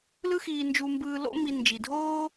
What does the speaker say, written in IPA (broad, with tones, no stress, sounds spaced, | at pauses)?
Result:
l ɯ˥ x iː˧ n d͡ʒ u˧ m b ɯː˧ l o̰˥ m i˧ n d͡ʒ i˩ dʱ oː˧